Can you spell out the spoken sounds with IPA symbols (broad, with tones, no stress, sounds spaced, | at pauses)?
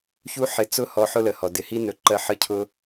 ç u˦ ħ ɪ˨ t͡s ʊ˥ h ɔ˨ ħ ʊ˦ l ə˩ h ɔ˩ d ɪ˨ h i˦ n ɵ˨ ǃ ɜ˦ ħ ə˥ cʰ ʊ˥